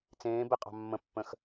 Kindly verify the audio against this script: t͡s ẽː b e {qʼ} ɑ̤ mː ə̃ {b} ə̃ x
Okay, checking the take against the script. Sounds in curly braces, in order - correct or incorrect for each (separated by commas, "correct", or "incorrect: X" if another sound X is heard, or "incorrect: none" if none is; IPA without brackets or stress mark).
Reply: correct, incorrect: pː